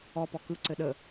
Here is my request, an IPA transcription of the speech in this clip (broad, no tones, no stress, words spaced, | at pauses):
ɔpɔ kɯǀɘ ɗə